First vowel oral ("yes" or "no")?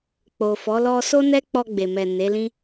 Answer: yes